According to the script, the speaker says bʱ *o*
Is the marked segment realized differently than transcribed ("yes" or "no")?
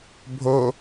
no